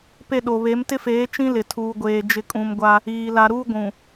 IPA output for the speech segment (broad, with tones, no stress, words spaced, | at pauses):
pe˦˨ɗo˨ βe˨˦mtɪ˦feː˨˦ t͡ʃĩ˦lɪ˨ tʰuː˨ɡʷeː˨ d͡ʒɪ˨kʼũ˨m ɡʷa˦ | iː˨ la˨ɾuː˦ ɡʷũ˨